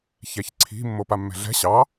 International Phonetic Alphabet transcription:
çɛçǀʰi̤ mːopamːɛ̤ɮɛ̤ ɕɑ

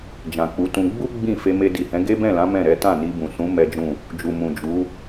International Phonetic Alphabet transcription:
d͡ʒã˨k͡pu˨˦tũ˧ ɡ͡bu˦ ɡ͡bĩ˦˨ fe˧me˧di˨hɛ̃˨˦ ɡe˦bɛ̃˦˨lã˨˦ mɛ̃˦˨ɾɛ˨˦ tã˦˨ni˧bũ˨sũ˨˦ mɛ˦d͡ʒũ˦˨ | d͡ʒu˨ mũ˨d͡ʒu˨˦

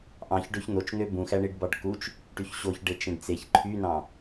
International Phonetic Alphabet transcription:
ʔɑ̃çɖøç n̪ot͡ʃn̪ø bũxæ ɳiɖbɑɖkut͡ʃ | ʈyçɕoçɖe t͡ʃẽɖt͡seç ǃʰynɑ̃

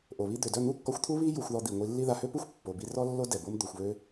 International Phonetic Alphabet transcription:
ʔo˨βi˦ d̪ø˨dœ˦˨ n̪u˦kːɔ˧xʷt̪ʰu˦ βi˦ ju˧xʷðɔ˧ d̪i˨ ŋʷi˧lːi˦ða˧ hø˦pu˦xʷ pːo˨ bi˧rɔ˦ lːo˦ dɛ˨bo˦m d̪o˨xʷβø˧

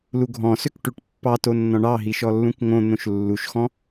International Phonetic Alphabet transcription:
luɡʱɔ̃søk ʈʉʈpːɑto nːɔ̃ɳɑɦi ʃɔlːũkŋõn̪õʃ lːuʃxɔ̃

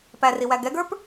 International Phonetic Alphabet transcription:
pæriwæ ɡɛɡə˞p

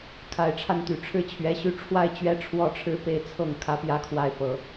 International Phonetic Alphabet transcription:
kʰa˨˩ɪ̯ʈ͡ʂʰa˥˩nt̪y˨˩ ʈ͡ʂʰɻ̩˥˩t͡ɕʰɥɛ˧˥ɕy˥ ʈ͡ʂʰwa˥˧ɪ̯t͡ɕɥɛ˥˩ʈ͡ʂʰwɔ˥ʈ͡ʂʰɻ̩˥˧ pe˥˧ɪ̯t͡sʰɤ˥˩ŋ kʰä˥pjä˥kʰwa˥˩ɪ̯ pɤ˧˥

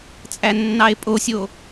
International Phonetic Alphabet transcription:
t͡sʼænːɑe̯pʼosʲo

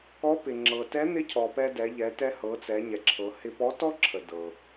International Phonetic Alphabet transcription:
kɔ˧˥pɪ˩ ŋ͡ǁɤ˩tɛ˧˥n̪ɪ˧˥ cʰɔ˩ pɛ˧dɛ˩˧ ʎɛ˩˧tɛ˧ hɤ˩˧t͡sɛ˩˧ ɲɛ˩ǁʰɤ˩˧ hɪ˧pɔ˧˥ tɔ˥ǁʰə˩ dɤ˩

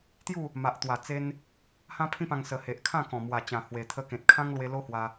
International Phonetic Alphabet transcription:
t̪ju˥˧ | ma˨ʔt̪wa˨˩t͡se˧n | hã˦pʰĩ˦pã˧ŋ sə˨˩ he˨ʔkʰã˥˧kɔ̃˨˩ mwa˨˩t͡ɕã˨˩hwe˨˩ t̪ʰə˧kẽ˨t̚kʰã˦ŋlwe˧ lo˦ hwa˧

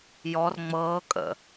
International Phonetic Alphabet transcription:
jɔr ŋ͡mɤːkʼə̰

